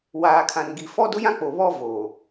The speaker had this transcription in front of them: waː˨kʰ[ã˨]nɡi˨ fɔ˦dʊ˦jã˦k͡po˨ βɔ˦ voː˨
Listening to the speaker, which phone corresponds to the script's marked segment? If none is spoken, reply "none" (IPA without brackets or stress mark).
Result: ã˨